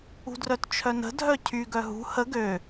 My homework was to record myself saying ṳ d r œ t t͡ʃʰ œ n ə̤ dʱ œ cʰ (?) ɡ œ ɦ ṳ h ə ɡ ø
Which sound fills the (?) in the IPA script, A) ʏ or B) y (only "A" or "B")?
B